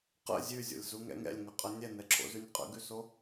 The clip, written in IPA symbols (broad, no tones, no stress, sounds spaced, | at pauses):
q ə̰ zʲ ʉ zʲ o̰ lʲ z u ŋ ɛ̰ ŋ ɛ̰ lʲ ŋ ə qʼ ə nʲ ɛ n ɛ ǁʰ o̰ z ʉ nʲ qʼ ə̰ ɡ ʉ s o